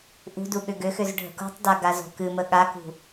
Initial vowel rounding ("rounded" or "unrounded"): rounded